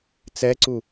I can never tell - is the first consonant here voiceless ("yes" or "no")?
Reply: yes